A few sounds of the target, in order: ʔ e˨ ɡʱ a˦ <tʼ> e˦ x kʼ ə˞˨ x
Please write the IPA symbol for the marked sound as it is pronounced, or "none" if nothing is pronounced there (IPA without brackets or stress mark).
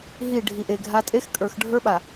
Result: tʼ